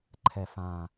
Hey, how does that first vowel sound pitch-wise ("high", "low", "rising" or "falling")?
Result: low